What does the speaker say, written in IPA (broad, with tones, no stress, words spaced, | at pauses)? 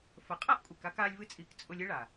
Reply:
fə˨qʼa˦ʔkʷʼe˨k a˦kaː˧lʲvɨ˧t͡sʼiː˨k t͡sʼʊ˧lʲɨ˦ɭa˨